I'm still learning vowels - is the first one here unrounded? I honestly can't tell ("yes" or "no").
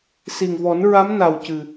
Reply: yes